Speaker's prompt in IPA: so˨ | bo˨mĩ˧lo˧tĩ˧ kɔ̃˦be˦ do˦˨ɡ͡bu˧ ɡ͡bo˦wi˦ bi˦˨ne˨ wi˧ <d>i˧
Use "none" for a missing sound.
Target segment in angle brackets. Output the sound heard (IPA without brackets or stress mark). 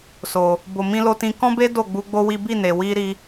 ɾ